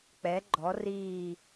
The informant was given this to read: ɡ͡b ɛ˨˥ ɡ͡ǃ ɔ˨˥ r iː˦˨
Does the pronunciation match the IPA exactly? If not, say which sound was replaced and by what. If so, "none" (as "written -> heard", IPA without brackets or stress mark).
ɡ͡b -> k͡p